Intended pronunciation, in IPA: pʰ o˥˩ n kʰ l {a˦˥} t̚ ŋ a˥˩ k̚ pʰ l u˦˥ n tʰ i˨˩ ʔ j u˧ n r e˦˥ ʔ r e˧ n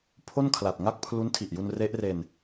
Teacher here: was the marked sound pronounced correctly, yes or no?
no